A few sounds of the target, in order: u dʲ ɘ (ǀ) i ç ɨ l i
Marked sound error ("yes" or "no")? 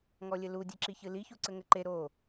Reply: yes